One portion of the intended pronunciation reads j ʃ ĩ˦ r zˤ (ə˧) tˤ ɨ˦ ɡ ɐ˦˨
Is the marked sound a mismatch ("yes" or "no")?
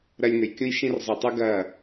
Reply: yes